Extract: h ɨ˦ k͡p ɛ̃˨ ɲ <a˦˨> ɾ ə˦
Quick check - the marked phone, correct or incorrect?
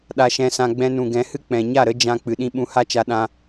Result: correct